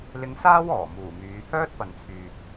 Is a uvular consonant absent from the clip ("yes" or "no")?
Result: yes